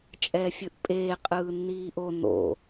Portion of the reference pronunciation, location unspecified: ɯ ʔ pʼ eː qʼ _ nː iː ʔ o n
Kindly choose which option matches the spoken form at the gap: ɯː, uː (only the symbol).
ɯː